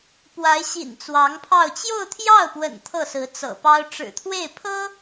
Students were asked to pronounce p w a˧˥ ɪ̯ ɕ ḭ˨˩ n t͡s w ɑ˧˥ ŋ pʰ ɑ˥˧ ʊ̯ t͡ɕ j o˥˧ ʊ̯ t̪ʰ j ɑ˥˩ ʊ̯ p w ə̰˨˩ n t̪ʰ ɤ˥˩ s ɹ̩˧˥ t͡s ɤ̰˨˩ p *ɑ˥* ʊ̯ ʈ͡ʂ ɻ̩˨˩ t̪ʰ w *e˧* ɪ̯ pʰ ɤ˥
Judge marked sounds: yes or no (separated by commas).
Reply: yes, no